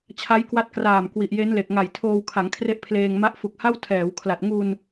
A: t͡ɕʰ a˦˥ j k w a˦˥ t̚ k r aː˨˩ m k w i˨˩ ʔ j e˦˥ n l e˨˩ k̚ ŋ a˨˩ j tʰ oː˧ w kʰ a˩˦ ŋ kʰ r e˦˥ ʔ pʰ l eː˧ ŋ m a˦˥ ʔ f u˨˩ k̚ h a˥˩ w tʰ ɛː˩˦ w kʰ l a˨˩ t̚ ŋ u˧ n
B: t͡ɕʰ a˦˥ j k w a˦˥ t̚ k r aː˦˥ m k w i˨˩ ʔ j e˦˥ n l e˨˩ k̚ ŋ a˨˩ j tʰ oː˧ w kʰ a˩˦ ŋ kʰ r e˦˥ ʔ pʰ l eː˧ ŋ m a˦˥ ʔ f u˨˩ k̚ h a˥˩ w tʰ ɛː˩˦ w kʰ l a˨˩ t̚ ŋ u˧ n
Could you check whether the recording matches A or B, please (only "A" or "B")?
A